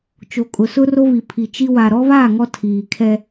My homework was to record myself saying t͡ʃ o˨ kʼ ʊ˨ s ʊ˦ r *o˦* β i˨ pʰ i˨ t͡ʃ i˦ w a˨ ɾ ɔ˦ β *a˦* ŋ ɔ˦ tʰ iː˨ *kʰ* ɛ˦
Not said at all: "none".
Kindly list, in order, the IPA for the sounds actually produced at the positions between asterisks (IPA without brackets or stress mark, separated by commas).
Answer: o˦, a˦˨, kʰ